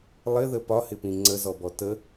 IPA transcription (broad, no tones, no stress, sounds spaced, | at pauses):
lˠ ɪ ð ə p ɒ h ɪ p ĩ ŋ͡ǀ ə z ɔ b ɔ t ə